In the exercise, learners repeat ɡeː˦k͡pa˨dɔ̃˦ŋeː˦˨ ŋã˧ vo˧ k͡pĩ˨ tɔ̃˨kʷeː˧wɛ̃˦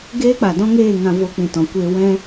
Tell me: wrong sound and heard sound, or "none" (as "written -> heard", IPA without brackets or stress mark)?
none